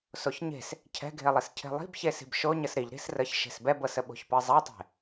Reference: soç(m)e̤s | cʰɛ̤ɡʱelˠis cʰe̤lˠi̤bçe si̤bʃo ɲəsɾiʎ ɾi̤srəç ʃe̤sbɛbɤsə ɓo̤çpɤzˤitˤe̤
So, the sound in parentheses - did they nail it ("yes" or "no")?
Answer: no